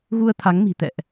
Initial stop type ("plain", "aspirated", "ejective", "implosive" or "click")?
aspirated